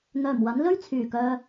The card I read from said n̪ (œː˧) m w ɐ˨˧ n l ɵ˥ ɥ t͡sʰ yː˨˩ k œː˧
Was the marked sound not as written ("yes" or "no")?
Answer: yes